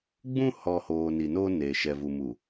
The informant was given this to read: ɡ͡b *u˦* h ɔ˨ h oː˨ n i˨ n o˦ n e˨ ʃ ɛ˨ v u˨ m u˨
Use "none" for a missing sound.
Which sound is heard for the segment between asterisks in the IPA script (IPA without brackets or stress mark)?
ũ˦